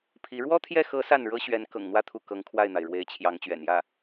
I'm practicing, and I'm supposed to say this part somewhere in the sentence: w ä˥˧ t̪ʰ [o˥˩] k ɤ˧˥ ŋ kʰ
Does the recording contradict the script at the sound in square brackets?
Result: yes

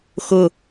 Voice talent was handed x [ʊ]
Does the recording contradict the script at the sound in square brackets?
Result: no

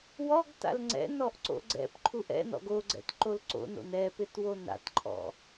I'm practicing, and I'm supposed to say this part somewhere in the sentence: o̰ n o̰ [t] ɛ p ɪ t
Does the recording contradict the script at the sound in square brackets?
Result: yes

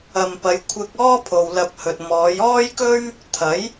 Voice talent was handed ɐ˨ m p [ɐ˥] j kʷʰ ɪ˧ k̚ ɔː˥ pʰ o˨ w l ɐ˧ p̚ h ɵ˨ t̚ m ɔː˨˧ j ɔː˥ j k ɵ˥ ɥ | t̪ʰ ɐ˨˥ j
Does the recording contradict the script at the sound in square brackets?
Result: yes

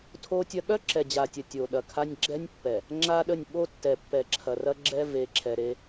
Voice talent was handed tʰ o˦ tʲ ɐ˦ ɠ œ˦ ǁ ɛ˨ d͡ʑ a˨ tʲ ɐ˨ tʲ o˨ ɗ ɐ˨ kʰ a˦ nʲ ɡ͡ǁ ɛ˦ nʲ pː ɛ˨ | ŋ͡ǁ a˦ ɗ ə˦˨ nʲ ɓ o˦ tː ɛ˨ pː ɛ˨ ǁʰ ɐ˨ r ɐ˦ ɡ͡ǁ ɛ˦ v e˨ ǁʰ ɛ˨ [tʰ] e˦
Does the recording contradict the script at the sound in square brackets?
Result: yes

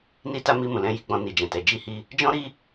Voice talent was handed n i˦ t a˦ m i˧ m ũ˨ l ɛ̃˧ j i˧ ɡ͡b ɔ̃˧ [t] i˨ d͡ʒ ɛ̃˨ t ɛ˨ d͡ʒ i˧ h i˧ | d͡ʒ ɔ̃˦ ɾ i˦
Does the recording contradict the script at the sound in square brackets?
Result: yes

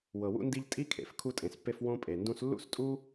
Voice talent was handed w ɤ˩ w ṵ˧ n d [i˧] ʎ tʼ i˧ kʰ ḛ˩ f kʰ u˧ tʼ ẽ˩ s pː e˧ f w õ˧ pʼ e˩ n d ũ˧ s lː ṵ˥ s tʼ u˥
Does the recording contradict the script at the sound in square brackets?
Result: no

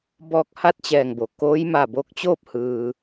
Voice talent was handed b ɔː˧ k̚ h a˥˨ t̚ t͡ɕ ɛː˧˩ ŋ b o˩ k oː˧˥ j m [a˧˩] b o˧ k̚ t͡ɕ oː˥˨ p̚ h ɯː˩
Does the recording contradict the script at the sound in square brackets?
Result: no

